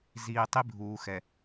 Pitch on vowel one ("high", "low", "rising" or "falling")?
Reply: low